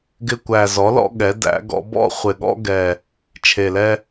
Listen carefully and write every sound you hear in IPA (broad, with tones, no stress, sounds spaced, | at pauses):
ɡ ɪ˦ kʷ æ˨˩ z ɔ˩˥ l ɔ̰˦ ɠ ɛ˩˥ d æ̰˩˥ ɡ ɔ̰˩˥ b ɔ̰˦ χʷ ɪ˨˩ ɠ ɔ̰˦ ɡ ɛ˨˩ | t͡ʃʰ e˨˩ l ɛ˦